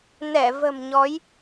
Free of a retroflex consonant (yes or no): yes